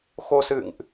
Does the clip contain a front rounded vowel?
no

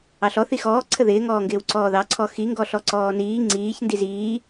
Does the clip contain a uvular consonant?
no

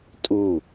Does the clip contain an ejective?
yes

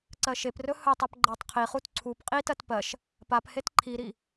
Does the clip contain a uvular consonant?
yes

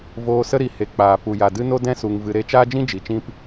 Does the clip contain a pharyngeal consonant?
no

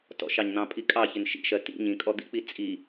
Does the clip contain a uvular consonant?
no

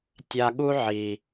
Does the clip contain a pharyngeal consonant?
yes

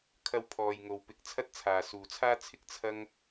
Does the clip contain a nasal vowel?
no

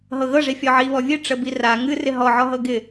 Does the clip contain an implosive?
no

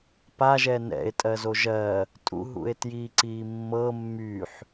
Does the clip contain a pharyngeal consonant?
yes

